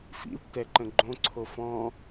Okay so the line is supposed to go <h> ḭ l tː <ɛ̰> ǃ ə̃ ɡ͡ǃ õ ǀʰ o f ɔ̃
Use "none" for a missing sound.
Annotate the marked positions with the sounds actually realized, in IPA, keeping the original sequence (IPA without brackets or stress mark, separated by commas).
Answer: f, ɛ